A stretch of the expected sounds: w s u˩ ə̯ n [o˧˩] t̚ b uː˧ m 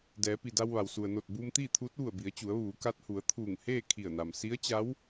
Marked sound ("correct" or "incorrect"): correct